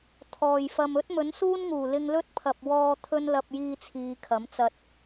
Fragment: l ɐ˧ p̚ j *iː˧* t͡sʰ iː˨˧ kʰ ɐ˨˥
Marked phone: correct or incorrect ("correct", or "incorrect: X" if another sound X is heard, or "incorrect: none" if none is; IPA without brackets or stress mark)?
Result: correct